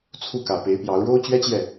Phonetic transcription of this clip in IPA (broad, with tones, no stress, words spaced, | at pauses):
t͡sʰu˥˩kä˨˩pe˧˥ɪ̯pjɑ˧˥ʊ̯ ɻo˥ʊ̯t͡ɕɥɛ˥t͡ɕjɛ˥˩